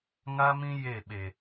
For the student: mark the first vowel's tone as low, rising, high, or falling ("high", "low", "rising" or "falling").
high